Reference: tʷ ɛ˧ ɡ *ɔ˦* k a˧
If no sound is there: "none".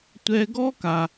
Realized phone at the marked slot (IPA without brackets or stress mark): ɔ˦